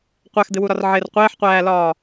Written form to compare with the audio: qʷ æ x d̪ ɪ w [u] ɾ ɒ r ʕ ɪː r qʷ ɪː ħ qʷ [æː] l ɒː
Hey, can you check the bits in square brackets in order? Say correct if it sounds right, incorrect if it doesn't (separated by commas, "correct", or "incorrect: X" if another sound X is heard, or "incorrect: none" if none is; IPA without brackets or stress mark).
correct, correct